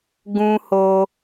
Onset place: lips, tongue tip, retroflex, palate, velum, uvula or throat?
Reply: velum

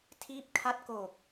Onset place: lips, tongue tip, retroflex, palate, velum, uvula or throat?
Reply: tongue tip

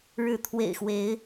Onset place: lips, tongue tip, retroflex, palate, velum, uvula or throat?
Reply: retroflex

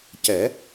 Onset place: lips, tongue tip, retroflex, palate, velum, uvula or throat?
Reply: palate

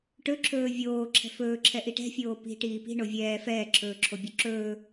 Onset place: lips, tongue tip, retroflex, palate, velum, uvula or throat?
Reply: retroflex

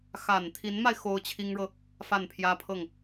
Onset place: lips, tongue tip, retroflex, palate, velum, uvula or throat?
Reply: velum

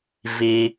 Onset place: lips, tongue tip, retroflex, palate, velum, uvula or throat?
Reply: lips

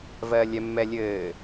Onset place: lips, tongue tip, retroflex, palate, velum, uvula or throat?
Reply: lips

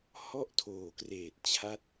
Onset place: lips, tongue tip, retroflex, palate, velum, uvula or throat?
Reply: throat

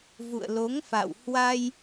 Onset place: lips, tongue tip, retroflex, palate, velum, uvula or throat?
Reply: lips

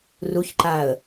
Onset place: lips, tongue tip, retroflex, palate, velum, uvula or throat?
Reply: tongue tip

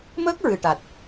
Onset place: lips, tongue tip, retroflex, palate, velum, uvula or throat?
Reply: lips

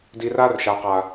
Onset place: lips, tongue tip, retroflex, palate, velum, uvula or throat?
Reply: tongue tip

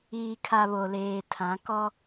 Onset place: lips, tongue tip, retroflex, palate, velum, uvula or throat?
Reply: velum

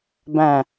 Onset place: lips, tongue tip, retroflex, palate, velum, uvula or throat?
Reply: lips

